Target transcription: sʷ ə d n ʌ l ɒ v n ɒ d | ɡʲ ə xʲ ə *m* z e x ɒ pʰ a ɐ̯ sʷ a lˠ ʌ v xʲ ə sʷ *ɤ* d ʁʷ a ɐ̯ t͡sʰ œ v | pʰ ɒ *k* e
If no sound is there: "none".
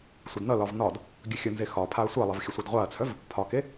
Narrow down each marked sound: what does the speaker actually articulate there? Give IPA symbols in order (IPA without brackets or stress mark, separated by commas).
n, ɤ, k